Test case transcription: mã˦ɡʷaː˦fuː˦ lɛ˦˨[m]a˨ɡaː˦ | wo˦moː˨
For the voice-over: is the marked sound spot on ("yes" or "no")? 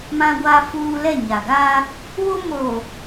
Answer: no